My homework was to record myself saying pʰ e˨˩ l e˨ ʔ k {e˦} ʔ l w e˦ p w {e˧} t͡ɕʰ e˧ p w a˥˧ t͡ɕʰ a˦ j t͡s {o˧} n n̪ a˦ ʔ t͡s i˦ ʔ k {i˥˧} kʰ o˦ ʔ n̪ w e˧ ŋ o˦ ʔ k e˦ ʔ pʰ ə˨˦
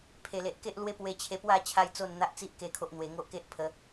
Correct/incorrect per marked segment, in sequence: correct, correct, incorrect: o˥˧, incorrect: e˥˧

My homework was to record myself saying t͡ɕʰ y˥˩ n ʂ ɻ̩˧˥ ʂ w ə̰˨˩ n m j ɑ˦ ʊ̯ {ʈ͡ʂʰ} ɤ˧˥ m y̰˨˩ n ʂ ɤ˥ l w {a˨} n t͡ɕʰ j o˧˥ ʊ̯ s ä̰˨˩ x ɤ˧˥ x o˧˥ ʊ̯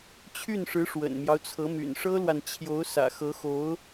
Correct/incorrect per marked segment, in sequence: incorrect: t͡sʰ, correct

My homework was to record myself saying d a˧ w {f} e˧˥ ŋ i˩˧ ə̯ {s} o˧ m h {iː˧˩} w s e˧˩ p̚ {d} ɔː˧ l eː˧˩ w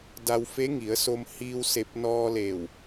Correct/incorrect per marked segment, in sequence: correct, correct, incorrect: iː˧, incorrect: n

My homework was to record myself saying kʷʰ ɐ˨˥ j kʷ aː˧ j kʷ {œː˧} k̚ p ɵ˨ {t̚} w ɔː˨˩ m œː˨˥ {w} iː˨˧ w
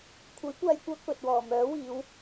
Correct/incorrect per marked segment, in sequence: correct, correct, correct

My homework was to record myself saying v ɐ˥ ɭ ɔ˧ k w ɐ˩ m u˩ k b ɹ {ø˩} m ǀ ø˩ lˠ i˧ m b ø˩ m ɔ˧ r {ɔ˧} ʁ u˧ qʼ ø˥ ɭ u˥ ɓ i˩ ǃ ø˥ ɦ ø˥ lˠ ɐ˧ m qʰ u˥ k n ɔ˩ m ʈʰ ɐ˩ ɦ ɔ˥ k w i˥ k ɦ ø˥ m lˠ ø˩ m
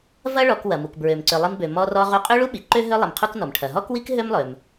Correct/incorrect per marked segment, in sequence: correct, correct

